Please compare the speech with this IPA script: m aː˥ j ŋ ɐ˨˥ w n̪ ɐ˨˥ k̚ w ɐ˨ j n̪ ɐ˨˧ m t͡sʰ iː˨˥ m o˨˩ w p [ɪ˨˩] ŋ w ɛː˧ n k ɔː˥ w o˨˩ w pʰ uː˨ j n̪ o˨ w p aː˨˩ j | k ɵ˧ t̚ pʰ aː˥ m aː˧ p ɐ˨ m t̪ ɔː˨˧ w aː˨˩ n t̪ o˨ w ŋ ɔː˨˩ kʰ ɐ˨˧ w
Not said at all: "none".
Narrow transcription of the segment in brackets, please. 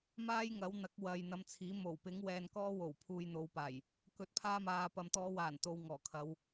ɪ˨˥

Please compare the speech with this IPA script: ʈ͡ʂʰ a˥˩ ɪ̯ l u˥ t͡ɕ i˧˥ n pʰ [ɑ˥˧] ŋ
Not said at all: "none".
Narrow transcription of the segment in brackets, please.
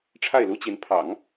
ɑ̰˨˩˦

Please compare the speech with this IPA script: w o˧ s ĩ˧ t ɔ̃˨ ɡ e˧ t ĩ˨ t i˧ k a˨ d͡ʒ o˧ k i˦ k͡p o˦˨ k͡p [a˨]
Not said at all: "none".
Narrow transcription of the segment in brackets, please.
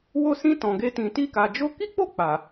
a˨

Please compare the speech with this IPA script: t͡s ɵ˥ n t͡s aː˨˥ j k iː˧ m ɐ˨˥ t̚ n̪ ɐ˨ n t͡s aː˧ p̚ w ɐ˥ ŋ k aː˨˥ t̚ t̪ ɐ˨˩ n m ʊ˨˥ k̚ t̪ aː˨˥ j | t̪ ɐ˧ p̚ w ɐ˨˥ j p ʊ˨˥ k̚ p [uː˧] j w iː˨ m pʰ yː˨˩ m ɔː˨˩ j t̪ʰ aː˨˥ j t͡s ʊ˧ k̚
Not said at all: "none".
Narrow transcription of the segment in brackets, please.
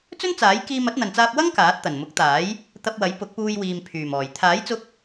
uː˧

